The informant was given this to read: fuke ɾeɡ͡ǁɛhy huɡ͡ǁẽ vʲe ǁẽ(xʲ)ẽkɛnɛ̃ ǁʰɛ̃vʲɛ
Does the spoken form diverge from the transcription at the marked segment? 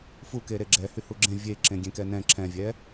yes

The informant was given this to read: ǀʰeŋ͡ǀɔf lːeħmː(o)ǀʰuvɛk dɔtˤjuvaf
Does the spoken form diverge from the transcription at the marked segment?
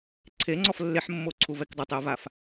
no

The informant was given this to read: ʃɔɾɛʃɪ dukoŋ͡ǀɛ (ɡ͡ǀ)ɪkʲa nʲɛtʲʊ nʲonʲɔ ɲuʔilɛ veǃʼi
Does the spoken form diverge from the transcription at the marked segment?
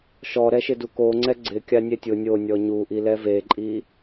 no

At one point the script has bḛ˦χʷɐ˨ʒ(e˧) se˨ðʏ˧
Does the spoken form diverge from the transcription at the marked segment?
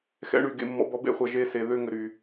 yes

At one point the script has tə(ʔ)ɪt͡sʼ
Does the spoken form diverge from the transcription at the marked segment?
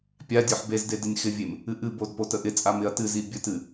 no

